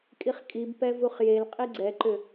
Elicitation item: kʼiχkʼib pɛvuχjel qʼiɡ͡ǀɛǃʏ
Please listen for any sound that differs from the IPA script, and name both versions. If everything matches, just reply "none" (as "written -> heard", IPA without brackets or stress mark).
none